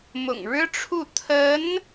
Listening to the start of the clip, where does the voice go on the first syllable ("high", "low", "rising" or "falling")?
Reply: low